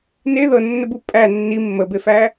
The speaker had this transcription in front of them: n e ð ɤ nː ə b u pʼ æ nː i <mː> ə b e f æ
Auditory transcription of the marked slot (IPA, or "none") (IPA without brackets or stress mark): mː